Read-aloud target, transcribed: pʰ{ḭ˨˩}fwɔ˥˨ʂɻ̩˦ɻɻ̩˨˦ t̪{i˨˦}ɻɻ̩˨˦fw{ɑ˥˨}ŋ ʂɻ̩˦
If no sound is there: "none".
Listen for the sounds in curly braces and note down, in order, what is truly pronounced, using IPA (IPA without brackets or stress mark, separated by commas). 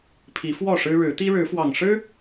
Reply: i˨˦, i˦, ɑ˨˩